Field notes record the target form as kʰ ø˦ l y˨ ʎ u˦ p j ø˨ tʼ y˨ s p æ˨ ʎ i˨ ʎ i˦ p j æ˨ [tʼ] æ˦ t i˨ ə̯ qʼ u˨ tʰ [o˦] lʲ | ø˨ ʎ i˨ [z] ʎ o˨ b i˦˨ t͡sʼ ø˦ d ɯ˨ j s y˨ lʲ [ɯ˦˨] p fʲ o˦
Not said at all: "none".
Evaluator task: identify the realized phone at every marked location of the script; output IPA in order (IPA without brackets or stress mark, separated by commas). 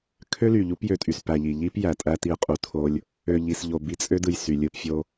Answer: tʼ, o˦, s, ɯ˦˨